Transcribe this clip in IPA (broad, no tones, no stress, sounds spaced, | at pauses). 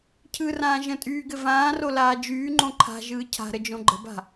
cʰ ɯ r ãː ʒ ə̃ tʼ yː ɡ ɘ v ãː r o l aː d͡ʒ yː ŋ͡ǃ õ ǃʰ a̤ ʒ ɯː cʰ a̤ ɾ ə d͡ʒ õ ɡ͡ǃ ə̤ b a̤